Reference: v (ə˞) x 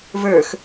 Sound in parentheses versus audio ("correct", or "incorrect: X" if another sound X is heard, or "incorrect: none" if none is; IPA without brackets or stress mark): correct